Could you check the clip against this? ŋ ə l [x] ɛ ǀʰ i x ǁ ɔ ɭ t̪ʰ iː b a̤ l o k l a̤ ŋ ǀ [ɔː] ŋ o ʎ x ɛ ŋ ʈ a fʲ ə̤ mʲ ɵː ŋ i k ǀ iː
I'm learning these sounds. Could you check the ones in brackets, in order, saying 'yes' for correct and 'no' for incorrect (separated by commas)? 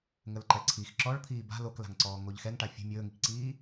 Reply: no, yes